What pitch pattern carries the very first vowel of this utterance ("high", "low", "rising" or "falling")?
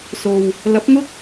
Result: low